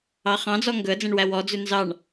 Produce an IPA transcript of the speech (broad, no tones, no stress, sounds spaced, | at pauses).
ɑ χ ɑ̃ d͡z ɔ ŋ ɡ ɵ ə̯ d͡z ẽ ɳ w æ w ɔ d͡z ʉ n z ɑ ɳ